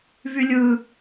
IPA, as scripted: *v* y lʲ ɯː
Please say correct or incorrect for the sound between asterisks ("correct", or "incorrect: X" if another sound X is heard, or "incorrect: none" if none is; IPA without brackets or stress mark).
correct